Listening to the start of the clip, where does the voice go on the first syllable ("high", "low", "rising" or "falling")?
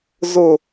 falling